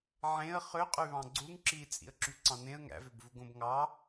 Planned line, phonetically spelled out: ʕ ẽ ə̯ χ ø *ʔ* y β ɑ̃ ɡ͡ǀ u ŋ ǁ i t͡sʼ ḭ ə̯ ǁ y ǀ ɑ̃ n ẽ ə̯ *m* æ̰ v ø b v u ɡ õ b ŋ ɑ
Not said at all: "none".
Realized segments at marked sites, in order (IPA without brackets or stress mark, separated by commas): qʼ, ŋ